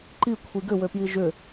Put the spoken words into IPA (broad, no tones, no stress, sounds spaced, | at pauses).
ǃ i kʷʰ i ɡ ʏ w ø p j i ʒ ʏ